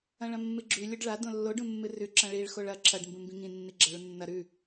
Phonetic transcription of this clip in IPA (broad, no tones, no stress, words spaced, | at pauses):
ɐ̃ɭɐ̃mːɨɡ͡ǁʉ lʲoɖɭa dõlːoɖ ũmːɨrʉ ǁɐ̃ɭiɭ xoɭɐ ǁʰɐɖ mbũmbĩŋĩ nːiɡ͡ǁɐɭunːɐ ɾʉ